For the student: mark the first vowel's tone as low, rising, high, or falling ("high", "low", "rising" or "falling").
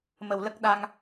low